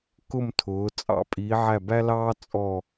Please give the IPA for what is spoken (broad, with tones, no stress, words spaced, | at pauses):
kʊ˥˧mtʰʊː˩˧t͡sʼɑ̰˧˩ pʼiː˩˧ʕæ˧˩bæ˥lɑː˥ t͡sʼɔ˧˩